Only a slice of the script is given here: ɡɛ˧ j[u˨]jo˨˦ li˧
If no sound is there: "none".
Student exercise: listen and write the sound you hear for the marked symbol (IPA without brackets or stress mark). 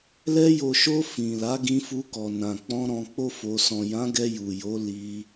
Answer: u˨